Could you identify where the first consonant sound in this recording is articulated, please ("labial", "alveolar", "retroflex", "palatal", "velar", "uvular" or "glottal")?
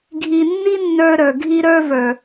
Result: velar